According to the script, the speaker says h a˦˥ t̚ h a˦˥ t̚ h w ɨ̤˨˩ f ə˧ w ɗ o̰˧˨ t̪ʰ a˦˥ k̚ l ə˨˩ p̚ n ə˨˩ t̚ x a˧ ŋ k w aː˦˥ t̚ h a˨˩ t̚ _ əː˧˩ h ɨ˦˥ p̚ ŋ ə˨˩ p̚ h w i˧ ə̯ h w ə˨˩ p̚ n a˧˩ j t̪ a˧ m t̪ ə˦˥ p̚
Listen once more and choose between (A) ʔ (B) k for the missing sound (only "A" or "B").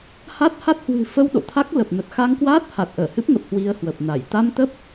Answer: A